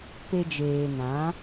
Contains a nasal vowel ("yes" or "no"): yes